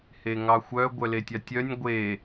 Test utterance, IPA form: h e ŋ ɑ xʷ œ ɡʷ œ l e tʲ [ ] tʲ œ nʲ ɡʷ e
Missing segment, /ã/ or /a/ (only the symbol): a